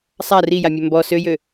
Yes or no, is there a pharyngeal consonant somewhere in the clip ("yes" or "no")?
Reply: no